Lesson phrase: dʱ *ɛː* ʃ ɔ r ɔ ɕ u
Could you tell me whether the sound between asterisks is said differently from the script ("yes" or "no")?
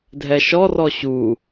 yes